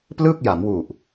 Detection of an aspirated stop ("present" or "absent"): absent